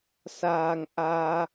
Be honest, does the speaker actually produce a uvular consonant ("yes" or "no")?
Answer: no